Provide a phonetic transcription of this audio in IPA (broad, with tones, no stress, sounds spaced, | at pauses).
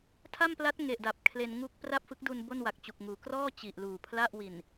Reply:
tʰ a˥˩ m p l a˦˥ t̚ ŋ e˨˩ ʔ d a˨˩ p̚ kʰ l e˧ n ŋ u˥˩ k̚ p r a˥˩ p̚ f ɯ˦˥ k̚ d u˧ n b o˥˩ n w a˨˩ k̚ t͡ɕ u˨˩ k̚ ŋ uː˩˦ k r ɔː˥˩ t͡ɕ i˨˩ ʔ l uː˨˩ pʰ l a˥˩ ʔ w i˨˩ n